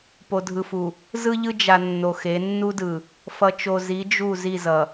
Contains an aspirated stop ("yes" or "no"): no